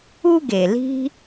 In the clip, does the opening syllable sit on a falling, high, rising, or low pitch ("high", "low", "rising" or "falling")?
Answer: high